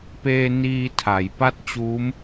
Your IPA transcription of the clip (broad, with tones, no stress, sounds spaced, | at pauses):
p eː˧ n iː˧ tʰ a˩˦ j p a˥˩ t̚ t͡ɕ uː˦˥ m